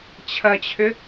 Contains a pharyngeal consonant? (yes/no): no